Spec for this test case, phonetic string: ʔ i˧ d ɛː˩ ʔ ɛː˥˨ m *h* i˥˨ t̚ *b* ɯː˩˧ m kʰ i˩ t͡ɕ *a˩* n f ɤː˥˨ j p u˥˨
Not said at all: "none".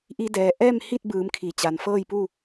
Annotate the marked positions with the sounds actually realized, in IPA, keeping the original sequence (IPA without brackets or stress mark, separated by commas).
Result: h, b, a˩